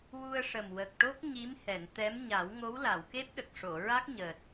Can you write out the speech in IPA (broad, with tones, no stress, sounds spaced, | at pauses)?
w u˧ ə̯ ʂ ə˨˩ m w ə˨˩ k̚ ʈ o˦˥ k̚ ɲ i˧˥ m h ɛ˨˩˨ n t̪ ɛ˧˥ m ɲ a˨˩˦ w ŋ o˧˥ w l a˨˩˨ w k e˦˥ p̚ ɗ ə˨˩ k̚ ʂ o˨˩˨ ɹ a˦˥ k̚ ɲ əː˨˩ t̚